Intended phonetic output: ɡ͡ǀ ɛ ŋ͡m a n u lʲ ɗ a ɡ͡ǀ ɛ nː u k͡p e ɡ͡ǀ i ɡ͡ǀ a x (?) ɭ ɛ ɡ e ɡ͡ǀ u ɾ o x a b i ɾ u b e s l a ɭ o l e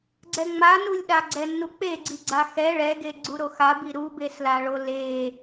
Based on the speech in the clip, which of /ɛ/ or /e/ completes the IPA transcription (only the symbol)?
ɛ